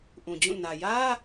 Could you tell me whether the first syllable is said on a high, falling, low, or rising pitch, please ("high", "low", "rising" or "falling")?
low